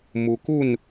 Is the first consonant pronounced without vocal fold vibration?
no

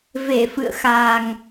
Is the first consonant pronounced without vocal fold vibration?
no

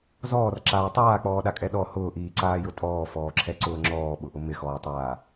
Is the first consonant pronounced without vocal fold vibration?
no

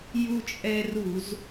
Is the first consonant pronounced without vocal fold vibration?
no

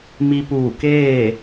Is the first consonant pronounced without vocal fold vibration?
no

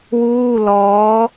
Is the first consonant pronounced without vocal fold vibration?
no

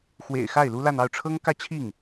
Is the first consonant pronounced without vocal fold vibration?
yes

